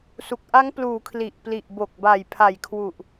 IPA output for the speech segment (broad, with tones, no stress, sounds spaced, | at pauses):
s u˨˩ k̚ ʔ a˦˥ ŋ p l uː˩˦ kʰ l i˨˩ ʔ p l i˨˩ ʔ b o˨˩ k̚ b a˨˩ j pʰ a˨˩ j kʰ w u˨˩ ʔ